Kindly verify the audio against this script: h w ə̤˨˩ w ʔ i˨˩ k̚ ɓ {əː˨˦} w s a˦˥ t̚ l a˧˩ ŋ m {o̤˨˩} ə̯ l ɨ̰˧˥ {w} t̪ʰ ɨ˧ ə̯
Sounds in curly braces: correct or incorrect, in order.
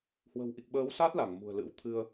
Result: correct, incorrect, correct

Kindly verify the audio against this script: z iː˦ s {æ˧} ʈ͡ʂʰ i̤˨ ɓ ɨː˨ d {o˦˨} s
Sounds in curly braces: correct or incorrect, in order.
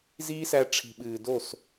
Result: correct, correct

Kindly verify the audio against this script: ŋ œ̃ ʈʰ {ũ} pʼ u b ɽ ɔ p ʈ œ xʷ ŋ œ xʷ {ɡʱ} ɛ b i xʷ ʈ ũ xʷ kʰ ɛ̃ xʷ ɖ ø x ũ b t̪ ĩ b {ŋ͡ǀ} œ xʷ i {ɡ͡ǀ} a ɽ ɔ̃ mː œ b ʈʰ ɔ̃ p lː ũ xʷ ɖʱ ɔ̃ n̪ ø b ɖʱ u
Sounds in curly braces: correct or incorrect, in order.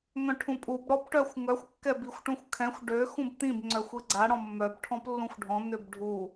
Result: correct, incorrect, correct, correct

